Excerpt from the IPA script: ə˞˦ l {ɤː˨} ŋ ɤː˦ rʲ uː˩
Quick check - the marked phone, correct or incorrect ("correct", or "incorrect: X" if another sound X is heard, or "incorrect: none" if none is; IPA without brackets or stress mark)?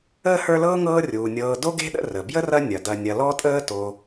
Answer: incorrect: ɤː˥